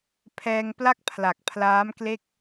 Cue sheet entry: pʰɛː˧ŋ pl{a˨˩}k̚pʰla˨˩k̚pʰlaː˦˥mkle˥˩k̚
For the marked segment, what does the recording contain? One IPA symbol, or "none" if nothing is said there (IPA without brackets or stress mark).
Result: a˥˩